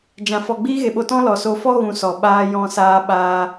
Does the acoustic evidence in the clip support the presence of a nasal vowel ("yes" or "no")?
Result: yes